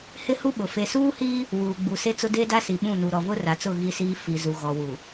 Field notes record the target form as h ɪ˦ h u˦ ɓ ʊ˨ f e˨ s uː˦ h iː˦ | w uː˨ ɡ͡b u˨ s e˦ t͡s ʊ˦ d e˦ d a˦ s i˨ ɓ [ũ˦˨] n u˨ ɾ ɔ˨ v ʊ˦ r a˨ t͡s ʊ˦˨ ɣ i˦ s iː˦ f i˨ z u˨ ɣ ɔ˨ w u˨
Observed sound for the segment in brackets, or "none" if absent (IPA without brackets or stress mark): ũ˦˨